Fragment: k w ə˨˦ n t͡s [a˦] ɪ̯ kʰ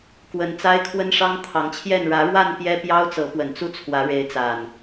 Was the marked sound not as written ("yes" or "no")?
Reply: no